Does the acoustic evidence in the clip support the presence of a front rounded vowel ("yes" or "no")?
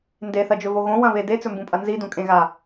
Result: no